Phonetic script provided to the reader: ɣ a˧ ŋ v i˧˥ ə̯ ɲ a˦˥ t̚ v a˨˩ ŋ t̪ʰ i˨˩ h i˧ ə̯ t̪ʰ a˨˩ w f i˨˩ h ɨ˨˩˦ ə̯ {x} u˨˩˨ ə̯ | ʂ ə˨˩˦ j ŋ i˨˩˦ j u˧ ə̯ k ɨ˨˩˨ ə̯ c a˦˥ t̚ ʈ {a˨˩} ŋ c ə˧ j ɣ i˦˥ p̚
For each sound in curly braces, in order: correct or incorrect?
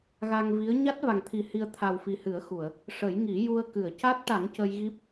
correct, incorrect

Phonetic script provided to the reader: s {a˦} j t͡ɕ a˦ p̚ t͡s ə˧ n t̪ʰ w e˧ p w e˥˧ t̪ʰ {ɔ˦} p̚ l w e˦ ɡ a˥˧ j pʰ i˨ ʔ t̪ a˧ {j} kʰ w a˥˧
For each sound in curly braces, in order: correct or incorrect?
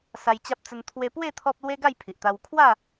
incorrect, correct, incorrect

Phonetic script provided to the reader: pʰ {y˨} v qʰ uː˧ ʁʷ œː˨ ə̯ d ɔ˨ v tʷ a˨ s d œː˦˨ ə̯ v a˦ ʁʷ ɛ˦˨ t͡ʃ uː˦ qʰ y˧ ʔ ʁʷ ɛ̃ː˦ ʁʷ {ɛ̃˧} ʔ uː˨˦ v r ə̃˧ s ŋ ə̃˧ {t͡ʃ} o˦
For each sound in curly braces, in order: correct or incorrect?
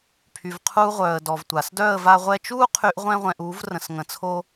correct, correct, incorrect

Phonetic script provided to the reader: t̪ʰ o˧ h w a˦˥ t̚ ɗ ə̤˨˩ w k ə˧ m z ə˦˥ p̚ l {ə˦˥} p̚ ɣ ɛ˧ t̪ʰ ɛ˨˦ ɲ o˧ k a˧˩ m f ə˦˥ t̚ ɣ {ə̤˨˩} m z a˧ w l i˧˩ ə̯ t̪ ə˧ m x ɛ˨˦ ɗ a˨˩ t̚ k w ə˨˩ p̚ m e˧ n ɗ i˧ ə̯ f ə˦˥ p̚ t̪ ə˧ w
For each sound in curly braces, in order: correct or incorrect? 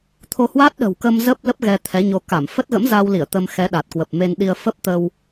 correct, incorrect

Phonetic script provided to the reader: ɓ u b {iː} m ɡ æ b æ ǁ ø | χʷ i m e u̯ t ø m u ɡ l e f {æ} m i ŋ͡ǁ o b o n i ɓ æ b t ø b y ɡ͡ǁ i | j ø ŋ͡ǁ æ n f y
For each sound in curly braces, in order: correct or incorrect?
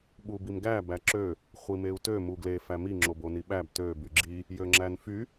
incorrect, correct

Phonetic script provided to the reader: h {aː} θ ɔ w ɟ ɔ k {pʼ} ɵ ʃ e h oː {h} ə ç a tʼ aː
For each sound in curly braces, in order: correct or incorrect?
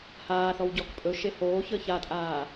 correct, correct, incorrect

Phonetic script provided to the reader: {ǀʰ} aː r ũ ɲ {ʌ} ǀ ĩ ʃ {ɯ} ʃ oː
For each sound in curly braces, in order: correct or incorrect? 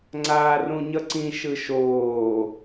incorrect, correct, correct

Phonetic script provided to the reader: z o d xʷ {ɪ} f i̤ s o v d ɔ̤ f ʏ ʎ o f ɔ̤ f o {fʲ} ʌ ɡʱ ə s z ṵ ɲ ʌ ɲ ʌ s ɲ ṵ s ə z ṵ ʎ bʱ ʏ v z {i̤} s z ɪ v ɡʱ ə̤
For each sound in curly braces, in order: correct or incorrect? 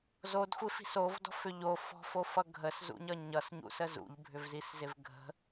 correct, incorrect, incorrect

